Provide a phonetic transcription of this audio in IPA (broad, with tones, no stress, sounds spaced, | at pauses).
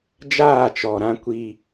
d͡ʒ aː˦˨ t͡ʃ ɔ˨ ɾ ã˦ kʷ i˦